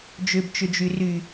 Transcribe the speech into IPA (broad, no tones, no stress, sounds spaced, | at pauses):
d͡ʒ ʏ b t͡ʃ ʏ d͡ʒ y r y